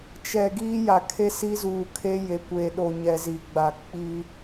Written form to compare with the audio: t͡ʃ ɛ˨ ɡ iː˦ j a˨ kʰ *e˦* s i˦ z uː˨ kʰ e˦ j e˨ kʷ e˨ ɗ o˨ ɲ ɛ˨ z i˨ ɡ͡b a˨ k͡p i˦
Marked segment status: correct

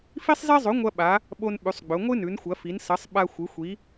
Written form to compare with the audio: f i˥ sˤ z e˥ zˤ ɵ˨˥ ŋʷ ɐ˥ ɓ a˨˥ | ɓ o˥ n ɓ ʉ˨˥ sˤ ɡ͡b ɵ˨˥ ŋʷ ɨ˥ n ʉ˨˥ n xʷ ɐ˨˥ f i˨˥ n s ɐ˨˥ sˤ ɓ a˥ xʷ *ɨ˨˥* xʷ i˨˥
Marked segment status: correct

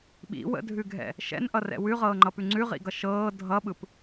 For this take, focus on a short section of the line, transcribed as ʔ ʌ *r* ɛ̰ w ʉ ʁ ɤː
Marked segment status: correct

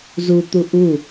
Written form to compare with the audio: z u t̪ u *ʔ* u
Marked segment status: correct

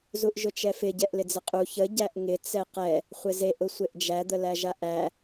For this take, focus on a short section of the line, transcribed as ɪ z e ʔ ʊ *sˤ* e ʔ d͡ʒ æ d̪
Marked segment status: incorrect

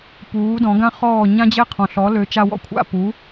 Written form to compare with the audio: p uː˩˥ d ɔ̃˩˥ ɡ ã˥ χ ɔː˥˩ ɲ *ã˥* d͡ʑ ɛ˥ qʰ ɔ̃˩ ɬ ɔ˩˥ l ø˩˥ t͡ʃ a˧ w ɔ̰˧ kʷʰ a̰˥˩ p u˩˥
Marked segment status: correct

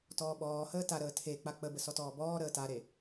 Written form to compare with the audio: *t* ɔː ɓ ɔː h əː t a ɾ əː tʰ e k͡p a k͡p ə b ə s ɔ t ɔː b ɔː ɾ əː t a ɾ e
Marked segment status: correct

